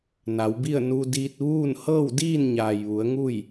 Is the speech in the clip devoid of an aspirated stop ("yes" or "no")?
yes